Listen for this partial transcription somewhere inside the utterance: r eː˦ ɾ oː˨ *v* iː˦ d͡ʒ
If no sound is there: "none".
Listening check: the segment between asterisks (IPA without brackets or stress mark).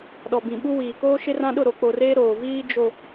v